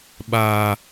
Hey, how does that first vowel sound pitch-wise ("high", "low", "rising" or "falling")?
low